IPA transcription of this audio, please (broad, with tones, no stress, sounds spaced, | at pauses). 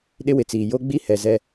ɗ ɪ˦ w ɪ˨ t͡s iː˨ j o˦ ɡ͡b i˦ h ɛ˨ z ɛ˦